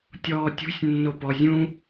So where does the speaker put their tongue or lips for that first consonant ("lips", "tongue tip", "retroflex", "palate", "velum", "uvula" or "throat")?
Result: tongue tip